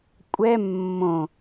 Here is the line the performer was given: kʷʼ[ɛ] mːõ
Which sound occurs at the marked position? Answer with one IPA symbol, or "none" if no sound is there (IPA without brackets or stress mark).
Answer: ɛ